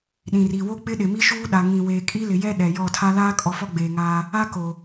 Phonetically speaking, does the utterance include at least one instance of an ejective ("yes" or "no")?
yes